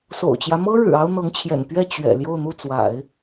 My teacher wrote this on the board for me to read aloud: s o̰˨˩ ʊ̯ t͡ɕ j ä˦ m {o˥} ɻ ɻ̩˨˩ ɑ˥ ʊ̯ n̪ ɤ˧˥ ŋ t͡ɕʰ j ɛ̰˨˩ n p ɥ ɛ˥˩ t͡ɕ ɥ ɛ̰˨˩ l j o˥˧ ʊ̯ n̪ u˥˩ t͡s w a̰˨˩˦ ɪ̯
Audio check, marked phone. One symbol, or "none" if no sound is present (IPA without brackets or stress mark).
ɤ˥